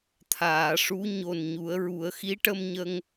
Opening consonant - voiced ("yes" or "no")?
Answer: no